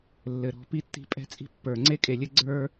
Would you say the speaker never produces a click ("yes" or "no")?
no